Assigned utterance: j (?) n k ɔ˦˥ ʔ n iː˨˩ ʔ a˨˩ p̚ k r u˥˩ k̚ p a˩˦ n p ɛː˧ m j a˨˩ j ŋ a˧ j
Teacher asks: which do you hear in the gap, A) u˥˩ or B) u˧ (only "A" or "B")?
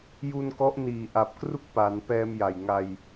B